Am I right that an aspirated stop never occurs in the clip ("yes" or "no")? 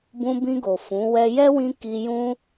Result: yes